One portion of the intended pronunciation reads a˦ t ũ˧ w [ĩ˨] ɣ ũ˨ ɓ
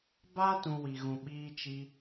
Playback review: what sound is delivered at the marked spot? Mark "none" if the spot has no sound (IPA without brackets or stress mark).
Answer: i˨